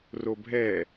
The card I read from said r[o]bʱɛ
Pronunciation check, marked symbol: correct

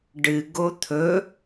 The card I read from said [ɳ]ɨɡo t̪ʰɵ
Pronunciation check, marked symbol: incorrect: ɖ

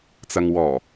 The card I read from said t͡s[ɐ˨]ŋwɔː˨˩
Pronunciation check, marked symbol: correct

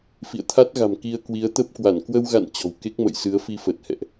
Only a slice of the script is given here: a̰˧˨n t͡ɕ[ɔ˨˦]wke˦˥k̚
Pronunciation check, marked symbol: incorrect: ɔ̤˨˩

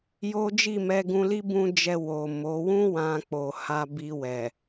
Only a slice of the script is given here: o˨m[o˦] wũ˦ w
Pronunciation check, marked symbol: incorrect: o˨˦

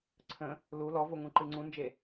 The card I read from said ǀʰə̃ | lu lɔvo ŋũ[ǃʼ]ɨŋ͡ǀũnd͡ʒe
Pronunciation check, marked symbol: incorrect: ǃ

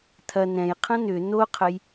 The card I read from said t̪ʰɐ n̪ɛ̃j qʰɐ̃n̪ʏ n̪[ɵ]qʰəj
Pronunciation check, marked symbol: incorrect: o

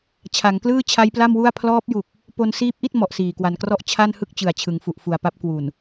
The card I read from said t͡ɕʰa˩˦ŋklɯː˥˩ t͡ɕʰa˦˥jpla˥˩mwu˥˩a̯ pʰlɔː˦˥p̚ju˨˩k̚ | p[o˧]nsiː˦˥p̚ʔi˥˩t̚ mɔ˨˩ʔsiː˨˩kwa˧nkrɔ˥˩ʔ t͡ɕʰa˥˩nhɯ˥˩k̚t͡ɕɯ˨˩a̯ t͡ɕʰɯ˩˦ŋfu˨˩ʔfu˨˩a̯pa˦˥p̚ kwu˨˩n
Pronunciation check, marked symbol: correct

